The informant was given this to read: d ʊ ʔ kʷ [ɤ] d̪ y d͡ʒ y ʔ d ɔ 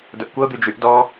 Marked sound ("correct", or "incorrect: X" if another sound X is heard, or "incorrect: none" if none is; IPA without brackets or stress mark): correct